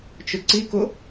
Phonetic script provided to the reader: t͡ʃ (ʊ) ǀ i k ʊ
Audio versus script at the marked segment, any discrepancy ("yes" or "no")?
no